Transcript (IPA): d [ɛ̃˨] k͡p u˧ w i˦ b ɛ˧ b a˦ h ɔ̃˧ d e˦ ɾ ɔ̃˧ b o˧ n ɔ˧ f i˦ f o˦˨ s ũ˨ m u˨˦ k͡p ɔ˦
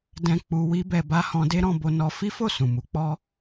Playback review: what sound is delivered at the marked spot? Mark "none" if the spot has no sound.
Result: ɛ̃˧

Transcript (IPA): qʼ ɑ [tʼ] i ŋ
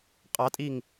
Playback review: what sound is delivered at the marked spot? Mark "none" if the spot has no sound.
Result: tʼ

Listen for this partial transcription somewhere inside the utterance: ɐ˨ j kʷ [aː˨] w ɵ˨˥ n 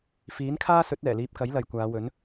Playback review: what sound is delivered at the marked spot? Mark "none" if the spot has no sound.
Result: aː˨˧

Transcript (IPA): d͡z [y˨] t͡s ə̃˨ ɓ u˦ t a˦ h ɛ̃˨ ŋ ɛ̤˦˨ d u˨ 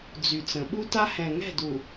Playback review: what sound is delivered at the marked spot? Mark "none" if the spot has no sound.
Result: y˨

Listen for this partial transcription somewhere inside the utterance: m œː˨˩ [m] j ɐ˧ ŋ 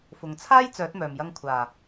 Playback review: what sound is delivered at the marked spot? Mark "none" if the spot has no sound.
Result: m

